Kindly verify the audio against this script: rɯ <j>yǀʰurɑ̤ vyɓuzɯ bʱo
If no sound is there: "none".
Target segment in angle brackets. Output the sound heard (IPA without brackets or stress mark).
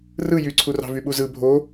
j